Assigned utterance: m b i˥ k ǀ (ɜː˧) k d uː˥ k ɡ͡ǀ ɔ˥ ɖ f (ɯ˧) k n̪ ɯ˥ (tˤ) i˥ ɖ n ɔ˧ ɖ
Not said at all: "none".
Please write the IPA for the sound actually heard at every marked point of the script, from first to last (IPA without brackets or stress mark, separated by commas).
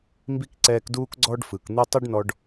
ɛː˧, ɯ˩, tˤ